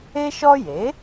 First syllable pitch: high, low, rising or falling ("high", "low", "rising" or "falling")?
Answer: high